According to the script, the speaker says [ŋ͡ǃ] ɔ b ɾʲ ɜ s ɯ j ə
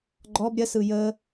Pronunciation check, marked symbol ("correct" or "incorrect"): incorrect